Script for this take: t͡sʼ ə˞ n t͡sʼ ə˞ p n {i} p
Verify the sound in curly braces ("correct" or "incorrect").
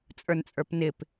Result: incorrect